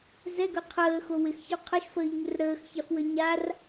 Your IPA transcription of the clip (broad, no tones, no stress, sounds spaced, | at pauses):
z ɛ ɡ œ qʰ əː x o w ɪ x ç o qʰ ə ʃ f əː ʎ ŋ ɪ r ɾ əː x ç a f w ə ɲ a r